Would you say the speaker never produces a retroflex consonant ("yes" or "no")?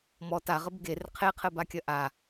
yes